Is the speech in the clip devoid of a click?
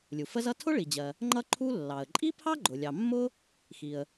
no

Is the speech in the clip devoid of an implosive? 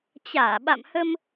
no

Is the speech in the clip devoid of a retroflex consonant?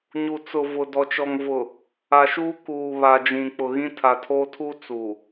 yes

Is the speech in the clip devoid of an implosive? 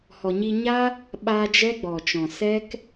no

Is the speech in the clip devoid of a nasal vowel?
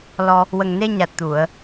yes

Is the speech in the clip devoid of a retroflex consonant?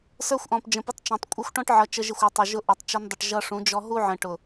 no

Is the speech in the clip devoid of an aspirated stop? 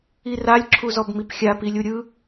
no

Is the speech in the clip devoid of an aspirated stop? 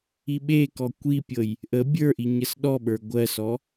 yes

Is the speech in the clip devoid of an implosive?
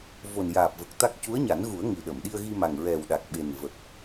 no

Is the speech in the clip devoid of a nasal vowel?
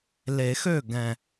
no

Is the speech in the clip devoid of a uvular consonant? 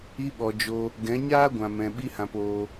yes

